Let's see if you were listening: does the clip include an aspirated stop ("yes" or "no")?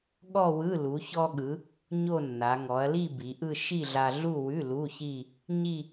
no